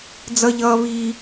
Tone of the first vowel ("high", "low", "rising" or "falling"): high